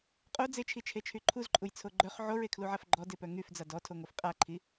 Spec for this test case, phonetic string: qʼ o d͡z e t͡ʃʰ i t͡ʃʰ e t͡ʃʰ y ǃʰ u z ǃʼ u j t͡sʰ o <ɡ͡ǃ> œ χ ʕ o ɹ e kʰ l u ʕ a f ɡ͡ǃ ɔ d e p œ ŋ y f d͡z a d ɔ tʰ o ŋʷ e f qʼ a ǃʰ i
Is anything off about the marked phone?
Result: no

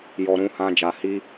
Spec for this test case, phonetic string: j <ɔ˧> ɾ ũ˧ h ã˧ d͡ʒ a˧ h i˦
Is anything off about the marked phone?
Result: no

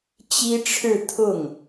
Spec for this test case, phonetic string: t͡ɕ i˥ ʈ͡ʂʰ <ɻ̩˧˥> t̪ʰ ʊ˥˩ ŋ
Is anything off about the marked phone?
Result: yes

